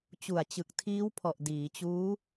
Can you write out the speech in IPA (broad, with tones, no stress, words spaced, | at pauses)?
t͡ɕu˨˩a̯t͡ɕɯ˨˩k̚tʰiː˦˥wpʰɔ˨˩ʔ diː˩˦t͡ɕuː˦˥